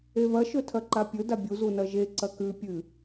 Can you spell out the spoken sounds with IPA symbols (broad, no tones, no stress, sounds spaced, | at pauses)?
e β ɐ ʃ ɵ tʰ ɐ ǃ a pʲ ɵ d a bʲ u z u n ɐ ʒ e ǀ ɐ k ʉ pʲ ɨ